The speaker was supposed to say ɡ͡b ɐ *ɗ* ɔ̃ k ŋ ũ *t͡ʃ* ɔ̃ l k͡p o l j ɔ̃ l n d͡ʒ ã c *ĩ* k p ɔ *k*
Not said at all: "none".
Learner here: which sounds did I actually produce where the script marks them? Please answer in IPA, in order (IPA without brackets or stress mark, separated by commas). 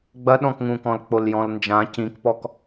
ɗ, k, ĩ, k